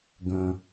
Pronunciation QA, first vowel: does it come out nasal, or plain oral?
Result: nasal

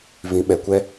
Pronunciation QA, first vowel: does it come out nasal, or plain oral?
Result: nasal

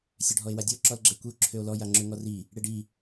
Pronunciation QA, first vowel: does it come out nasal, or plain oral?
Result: oral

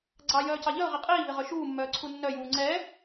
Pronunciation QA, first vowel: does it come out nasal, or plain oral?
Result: oral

